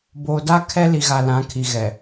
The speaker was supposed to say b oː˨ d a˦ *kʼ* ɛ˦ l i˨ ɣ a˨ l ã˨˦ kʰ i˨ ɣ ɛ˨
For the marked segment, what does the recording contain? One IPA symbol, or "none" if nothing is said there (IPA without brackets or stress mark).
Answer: kʰ